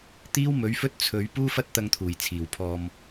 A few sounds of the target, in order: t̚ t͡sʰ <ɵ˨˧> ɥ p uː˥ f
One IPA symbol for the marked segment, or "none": ɵ˨˧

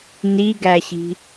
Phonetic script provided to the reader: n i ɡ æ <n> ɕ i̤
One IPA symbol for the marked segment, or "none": none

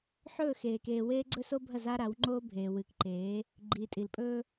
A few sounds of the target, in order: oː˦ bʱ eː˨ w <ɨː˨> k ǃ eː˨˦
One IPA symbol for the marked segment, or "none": ɨː˨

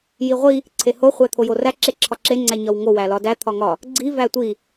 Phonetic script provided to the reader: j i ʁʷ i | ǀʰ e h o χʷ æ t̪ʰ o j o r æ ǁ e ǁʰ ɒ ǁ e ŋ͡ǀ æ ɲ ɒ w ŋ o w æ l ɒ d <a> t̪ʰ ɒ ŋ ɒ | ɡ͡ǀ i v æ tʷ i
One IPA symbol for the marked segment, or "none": æ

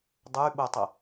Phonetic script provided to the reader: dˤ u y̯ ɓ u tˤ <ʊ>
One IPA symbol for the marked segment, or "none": ʊ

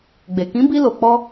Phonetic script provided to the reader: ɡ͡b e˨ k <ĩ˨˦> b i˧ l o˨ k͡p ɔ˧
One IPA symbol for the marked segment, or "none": ĩ˨˦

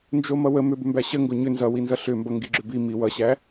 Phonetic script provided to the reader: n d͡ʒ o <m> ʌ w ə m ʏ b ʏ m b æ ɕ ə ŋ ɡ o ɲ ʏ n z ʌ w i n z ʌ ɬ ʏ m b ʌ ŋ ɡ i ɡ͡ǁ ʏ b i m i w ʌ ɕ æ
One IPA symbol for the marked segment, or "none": m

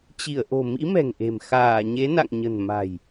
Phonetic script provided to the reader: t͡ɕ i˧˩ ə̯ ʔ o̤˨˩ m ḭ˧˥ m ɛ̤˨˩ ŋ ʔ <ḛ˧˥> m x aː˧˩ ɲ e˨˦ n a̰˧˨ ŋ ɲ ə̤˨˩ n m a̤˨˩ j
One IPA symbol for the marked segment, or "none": e̤˨˩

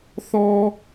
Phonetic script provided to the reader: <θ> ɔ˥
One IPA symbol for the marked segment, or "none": θ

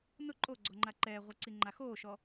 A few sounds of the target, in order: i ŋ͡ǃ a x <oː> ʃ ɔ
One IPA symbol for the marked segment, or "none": oː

